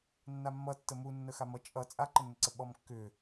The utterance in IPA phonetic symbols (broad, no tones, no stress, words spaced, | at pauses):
nːamːʌtːə munːə xamʌ t͡ʃʼʌ t͡sʼaǃənːəǀə ɓɔmkːʏ